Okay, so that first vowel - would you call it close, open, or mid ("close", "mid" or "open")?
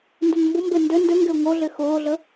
close